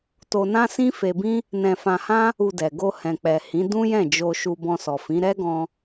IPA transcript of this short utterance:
to˧nã˦sĩ˦ fe˧bĩ˦ | nɛ̃˧fã˧hã˦ | u˧dɛ˨ ɡo˧hɛ̃˨k͡pɛ˨hĩ˨˦ dũ˦jɛ̃˦˨d͡ʒo˧ ʃu˧bɔ̃˧sɔ˨fĩ˨˦ ɾɛ˦ɡɔ̃˧

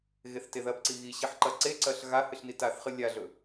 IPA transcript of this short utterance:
ɣeθteðɐbǀi ɣiɕiħ ǃɐǀeǀɐɬ ɣa hɨɬnitaθχɨ lʲaɮɵ

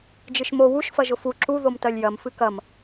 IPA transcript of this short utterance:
d͡ʒɨʃmo wuʃ fɐʒʊfu ǁu ðomtɜlʲjɐm fɨkɐm

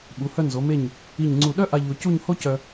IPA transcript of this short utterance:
ɓu˩˧hœ˧ nzo˩˧me˧˩ɲ | i˧˩ɲŋ͡ǀu˧˩ ɗœ˥ʔa˧ ʎo˧cu˥˧ɲ ho˥cœ˧

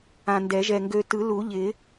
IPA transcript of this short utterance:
ã˨ndɛ˨˩˦ʒɛ˨ ŋɡø˨tɯ˨˩˦lu˨˩˦ʎɪ˨˩˦

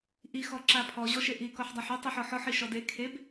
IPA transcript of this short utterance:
ʔi xɔǁapʰɔ ʑɔʃeʔi kɔħdˤaħu tˤiħɔħɔħ iʃɔde kʰeb

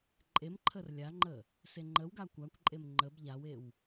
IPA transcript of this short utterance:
ǃʼemǃʰər lʲaŋ͡ǃə | seŋ͡ǃəwɡa kʷakʷǃʼem ŋ͡ǃəb ʎawew

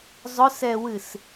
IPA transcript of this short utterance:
zˤʊsɛwɨs

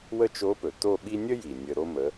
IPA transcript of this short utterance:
wə˥˧t͡ʃo˧˥pɵ˩ to˥˧ɓi˥ nʲə˥ji˩ nʲə˧ɾo˥mə˧˥

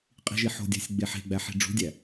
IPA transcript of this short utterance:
qʼi̤ʒiħo̤dʲæ̤sʲ ɡ͡beħe̤ɡ͡bæ ħi̤ɖ͡ʐṳdʲæ

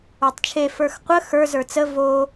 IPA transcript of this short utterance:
ə˞tˤt͡ʃʰe fə˞xqʷə xə˞ zə˞t͡sə vo

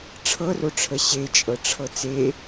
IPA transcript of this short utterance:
ʈ͡ʂʰɤroʈ͡ʂʰə ɕet͡ʃʼɤʈ͡ʂʰɤ t͡se

